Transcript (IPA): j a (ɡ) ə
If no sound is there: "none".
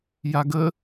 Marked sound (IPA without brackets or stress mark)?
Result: ɡ